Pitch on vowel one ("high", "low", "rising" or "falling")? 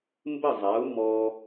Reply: falling